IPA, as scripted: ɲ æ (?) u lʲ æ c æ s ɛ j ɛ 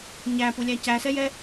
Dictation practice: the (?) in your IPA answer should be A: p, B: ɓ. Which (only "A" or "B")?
A